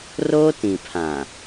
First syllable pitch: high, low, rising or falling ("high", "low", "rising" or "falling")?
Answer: high